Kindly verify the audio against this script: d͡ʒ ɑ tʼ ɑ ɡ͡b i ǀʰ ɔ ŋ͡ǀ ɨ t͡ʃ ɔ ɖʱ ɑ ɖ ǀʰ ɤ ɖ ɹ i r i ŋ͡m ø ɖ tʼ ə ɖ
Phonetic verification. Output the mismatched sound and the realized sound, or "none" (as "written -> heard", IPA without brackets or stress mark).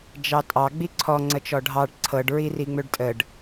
ɨ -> ə